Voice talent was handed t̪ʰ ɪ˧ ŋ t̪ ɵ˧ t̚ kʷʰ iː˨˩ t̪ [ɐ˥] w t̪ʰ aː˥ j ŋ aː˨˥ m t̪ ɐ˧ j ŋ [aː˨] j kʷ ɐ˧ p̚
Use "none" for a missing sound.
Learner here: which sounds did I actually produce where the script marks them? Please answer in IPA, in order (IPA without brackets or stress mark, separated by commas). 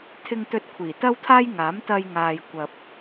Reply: ɐ˥, aː˨